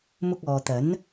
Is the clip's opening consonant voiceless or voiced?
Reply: voiced